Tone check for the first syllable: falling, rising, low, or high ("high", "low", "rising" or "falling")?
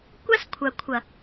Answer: high